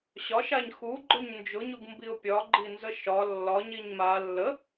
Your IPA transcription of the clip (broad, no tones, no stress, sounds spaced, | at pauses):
ɕ ɒ ʃ a ɲ x u ɡ͡ǃ ʊ ɲ n d͡ʒ ʊ ɲ u ɡ m b i ʊ̯ pʲ ɒ ɡ͡ǃ i n z ə ʃ ɒ lː ɒ ɲ i ɲ m a lː ə